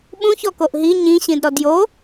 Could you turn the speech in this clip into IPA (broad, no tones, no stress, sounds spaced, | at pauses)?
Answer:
ɓ ũ ç ɔ k o ʔ ɦ i ɲ ĩ ɕ ĩ d ɾ ɔ d j o